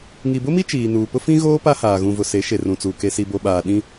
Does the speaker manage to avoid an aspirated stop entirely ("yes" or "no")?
yes